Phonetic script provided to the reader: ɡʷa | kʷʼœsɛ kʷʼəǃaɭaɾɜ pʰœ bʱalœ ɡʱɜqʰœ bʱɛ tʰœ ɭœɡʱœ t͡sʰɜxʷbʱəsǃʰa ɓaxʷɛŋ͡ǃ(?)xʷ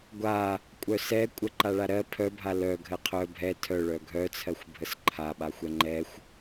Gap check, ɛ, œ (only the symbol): ɛ